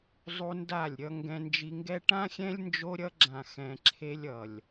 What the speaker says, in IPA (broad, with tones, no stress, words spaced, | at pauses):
zˤu˦nda˦˨lʲɾʲʌ˦ ŋɡɛ̃˧nd͡ʒi˧ŋɡɛ˦ ʈã˦xʲɛ̃˦lʲ nd͡ʒo˧ɾʲʌ˧ɡ͡ǁã˨ xɛ̃˧ǁʰe˦lʲ ʌ˨lʲ